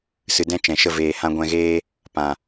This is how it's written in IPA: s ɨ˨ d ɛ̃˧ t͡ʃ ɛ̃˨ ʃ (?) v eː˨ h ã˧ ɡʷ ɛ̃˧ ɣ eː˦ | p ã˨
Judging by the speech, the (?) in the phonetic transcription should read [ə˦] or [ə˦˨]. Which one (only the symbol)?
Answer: ə˦˨